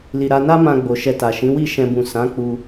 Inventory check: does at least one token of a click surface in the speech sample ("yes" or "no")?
no